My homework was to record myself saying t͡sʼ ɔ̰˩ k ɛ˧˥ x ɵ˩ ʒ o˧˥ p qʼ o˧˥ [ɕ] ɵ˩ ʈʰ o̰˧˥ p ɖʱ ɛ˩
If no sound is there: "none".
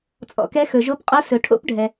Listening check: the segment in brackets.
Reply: s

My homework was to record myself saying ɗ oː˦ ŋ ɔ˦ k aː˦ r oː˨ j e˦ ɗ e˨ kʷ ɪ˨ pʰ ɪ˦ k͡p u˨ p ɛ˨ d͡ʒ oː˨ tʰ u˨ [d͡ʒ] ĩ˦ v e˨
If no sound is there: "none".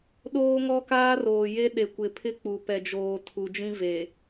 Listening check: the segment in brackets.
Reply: d͡ʒ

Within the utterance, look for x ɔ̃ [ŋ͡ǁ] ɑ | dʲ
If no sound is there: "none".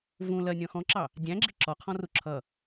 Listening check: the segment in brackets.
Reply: ǁ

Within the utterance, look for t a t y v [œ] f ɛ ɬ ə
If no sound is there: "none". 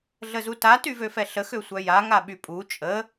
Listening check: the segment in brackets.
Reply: ø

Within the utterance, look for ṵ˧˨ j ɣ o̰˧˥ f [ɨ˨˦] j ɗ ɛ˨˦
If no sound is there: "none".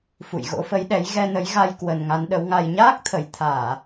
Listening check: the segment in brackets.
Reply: ə˨˦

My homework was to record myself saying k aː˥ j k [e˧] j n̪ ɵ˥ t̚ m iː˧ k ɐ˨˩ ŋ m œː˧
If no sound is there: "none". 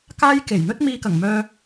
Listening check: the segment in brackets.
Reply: e˨˩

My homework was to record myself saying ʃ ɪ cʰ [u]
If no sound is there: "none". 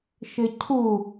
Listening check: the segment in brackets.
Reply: u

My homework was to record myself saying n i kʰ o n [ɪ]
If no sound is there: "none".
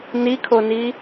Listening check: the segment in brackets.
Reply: i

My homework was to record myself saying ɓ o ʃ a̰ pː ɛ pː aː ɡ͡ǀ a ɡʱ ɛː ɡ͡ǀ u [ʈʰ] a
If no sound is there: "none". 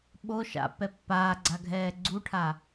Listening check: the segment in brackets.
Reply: ʈʰ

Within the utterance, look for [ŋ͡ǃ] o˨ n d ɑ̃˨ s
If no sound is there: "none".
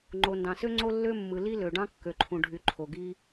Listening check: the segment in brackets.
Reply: ŋ͡ǃ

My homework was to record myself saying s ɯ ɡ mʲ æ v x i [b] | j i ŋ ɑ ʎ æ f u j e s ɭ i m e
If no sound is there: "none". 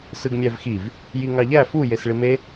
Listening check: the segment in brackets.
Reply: v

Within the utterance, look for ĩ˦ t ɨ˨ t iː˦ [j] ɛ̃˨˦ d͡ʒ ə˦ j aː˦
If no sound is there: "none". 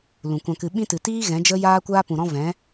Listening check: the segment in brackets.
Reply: ɣ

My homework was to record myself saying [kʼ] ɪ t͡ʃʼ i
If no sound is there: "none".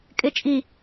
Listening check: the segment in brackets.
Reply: kʼ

